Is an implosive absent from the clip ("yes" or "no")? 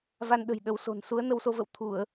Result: no